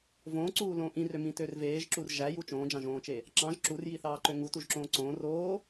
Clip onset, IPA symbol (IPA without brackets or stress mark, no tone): v